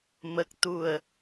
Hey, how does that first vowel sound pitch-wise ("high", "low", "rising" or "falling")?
low